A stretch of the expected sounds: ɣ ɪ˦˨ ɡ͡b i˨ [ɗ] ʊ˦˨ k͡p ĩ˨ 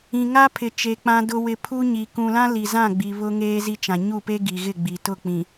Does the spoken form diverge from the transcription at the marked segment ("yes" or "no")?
yes